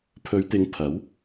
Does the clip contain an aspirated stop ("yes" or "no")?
yes